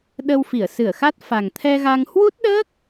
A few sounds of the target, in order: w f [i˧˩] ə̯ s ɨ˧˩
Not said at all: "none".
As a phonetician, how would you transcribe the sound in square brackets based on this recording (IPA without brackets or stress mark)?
i˧˩